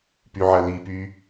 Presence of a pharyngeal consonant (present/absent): present